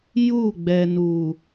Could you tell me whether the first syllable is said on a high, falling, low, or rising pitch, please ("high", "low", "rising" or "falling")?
falling